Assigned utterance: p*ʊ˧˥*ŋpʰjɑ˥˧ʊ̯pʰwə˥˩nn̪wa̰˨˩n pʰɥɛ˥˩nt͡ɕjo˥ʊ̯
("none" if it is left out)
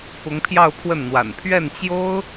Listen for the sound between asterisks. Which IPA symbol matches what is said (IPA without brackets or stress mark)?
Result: ʊ˧˥